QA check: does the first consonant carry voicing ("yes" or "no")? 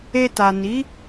no